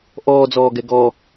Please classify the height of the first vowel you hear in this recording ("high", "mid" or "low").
mid